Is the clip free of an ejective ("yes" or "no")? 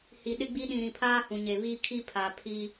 yes